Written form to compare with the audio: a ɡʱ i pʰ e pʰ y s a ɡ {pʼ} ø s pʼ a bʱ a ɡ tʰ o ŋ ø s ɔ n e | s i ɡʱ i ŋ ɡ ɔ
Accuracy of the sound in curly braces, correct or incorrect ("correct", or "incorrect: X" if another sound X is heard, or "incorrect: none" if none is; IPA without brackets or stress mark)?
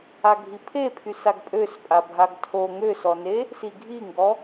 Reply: correct